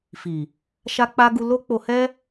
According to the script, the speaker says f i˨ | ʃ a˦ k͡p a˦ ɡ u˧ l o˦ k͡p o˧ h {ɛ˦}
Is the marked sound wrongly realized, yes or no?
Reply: no